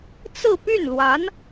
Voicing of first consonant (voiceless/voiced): voiceless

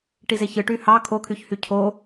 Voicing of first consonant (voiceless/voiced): voiceless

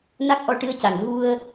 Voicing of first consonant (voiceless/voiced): voiced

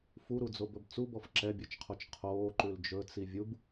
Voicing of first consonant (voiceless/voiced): voiceless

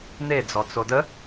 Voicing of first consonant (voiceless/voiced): voiced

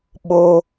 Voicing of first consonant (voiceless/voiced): voiced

